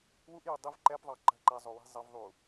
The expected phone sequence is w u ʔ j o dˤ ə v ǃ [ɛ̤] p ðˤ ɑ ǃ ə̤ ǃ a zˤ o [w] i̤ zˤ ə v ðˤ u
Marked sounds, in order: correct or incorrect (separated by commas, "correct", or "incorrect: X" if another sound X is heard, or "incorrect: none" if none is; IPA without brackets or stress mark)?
incorrect: ɛ, correct